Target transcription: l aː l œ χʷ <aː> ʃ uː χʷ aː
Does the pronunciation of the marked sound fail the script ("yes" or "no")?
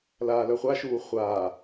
yes